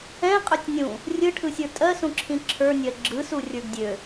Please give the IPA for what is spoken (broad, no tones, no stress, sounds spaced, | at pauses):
ɛ̃ qʼ ø tʲ nʲ ũ | rʲ ɯ ʈʰ ɯ sʲ ə˞ tʼ ɜ s ũ ǁʰ ĩ ǁʰ ə˞ nʲ ɜ ɡ͡ǁ ɯ s u rʲ ə˞ ɡ dʲ ø